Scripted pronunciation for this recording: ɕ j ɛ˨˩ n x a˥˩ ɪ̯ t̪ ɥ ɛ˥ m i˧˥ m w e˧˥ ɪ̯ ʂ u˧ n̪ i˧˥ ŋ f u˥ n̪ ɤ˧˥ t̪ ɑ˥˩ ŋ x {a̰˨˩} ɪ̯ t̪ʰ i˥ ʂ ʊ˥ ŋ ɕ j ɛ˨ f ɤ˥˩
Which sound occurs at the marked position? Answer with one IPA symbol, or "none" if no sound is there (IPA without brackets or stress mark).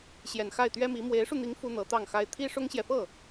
a˥